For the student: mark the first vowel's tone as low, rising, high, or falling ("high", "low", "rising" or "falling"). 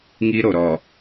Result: high